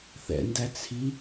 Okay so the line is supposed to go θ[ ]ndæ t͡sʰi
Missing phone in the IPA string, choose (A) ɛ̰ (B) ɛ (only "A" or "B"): A